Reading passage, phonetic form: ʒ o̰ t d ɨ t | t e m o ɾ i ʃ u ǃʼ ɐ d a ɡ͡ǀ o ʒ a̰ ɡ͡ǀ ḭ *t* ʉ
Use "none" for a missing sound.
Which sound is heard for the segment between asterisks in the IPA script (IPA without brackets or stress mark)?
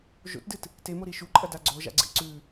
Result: ǀ